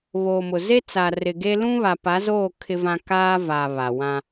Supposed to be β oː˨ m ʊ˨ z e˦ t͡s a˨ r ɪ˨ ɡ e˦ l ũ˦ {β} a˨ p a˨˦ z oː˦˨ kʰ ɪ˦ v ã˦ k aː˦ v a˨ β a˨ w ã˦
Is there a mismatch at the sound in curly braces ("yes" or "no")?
no